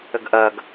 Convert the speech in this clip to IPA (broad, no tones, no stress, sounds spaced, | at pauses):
ɘ ɡ ʔ ɜ ɡ